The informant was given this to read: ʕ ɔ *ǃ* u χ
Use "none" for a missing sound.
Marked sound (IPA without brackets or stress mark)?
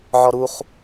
ɾ